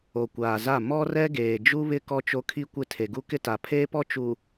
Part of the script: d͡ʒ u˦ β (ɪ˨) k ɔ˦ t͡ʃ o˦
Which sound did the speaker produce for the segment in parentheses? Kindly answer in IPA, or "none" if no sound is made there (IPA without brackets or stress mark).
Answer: ɪ˦